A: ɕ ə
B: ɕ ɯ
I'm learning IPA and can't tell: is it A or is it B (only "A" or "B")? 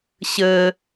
A